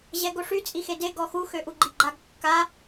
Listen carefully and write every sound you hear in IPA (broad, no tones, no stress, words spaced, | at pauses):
ʑɛɡoʂy t͡sʼixede ɡɔxu xøʔuɡ͡ǃiɡ͡ǃaɡ kːa